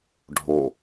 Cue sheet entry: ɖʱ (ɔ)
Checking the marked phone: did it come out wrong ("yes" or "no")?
yes